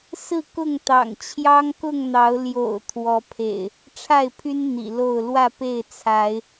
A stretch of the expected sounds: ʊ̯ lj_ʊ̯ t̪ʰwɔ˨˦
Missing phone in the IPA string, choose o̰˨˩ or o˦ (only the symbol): o̰˨˩